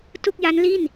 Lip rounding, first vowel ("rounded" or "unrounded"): rounded